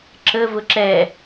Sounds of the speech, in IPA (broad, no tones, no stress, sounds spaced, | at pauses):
ǁ ə v ʊ ǁ ɛ